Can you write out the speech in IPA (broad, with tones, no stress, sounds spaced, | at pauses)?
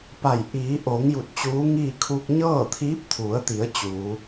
p a˧˩ j ʔ iː˩˧ ʔ oː˩˧ ŋ j u˧˩ t̚ t͡ɕ uː˧˥ ŋ iː˥˨ kʰ uː˧ k̚ ɲ ɤː˥˨ t̪ʰ iː˧˥ p̚ t̪ʰ u˩˧ ə̯ t̪ i˩˧ ə̯ t͡ɕ uː˩˧